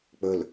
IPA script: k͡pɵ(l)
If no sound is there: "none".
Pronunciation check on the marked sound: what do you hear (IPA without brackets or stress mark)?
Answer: l